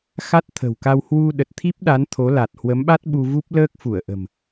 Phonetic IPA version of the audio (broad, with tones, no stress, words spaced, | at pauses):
xa˦˥t̚t̪ʰə̤˨˩wka˧w hwu˧ ɗə˨˩t̚t̪ʰi˦˥p̚ɗa˨˦n t̪ʰo˨˦la˨˩t̚ hwə˨˦mɓa˦˥t̚ ɓu˧vu˦˥p̚ ləː˦˥k̚fu˧˩ə̯ʔə̤˨˩m